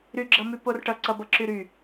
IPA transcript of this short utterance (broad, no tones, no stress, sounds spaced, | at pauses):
ɾ y ɡ͡ǁ ʌ m y p o r ʈ ʌ ǀ ʌ b ʌ ǁ y ɾ y